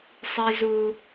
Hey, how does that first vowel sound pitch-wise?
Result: high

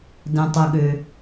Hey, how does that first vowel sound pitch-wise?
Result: low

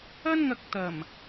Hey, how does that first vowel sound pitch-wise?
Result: high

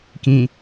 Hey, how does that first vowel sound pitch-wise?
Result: low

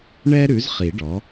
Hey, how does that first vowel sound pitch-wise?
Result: high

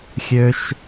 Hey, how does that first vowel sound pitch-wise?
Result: high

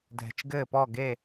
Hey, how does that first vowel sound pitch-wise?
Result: low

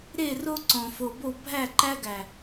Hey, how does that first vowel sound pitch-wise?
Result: falling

